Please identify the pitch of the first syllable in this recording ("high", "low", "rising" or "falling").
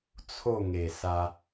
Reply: falling